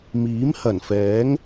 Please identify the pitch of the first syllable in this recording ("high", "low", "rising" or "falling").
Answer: rising